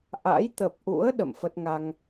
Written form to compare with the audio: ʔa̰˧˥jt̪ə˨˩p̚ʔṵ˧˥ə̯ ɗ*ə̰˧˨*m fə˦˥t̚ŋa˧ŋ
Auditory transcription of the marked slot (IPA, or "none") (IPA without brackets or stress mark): ə̰˧˨